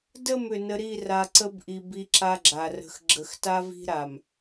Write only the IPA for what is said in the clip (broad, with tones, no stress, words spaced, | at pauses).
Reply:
də˦˨m ʏ˨nə˦ ɾi˦˨ ra˨ǀə˦bʔi˨ bi˦ǁa˦ɡ͡ǁa˨ rə̤˨xɡ͡ǁə˨xta˦vi̤˦ ɾa˨m